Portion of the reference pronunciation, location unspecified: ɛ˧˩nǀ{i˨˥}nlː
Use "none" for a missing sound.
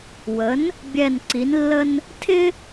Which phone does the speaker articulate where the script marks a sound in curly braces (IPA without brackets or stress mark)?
i˨˥